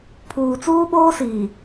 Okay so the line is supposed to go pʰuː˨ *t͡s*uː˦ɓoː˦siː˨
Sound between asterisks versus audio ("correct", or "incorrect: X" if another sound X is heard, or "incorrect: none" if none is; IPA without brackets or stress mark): correct